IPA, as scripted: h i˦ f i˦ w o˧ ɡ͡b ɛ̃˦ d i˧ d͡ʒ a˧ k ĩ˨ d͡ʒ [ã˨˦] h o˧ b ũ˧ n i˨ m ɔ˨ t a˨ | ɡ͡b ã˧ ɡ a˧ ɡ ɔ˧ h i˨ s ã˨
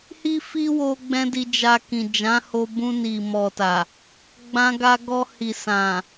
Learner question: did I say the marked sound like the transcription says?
yes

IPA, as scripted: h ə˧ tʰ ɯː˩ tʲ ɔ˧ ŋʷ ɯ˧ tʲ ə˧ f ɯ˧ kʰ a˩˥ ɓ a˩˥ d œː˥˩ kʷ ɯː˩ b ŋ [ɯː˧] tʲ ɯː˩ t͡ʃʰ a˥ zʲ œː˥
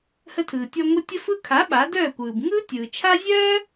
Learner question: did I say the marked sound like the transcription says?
no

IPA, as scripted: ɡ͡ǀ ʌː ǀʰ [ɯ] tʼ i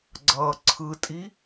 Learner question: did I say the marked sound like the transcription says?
yes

